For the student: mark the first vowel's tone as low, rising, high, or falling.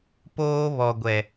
high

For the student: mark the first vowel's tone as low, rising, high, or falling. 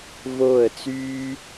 falling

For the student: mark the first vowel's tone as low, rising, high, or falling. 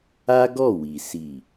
high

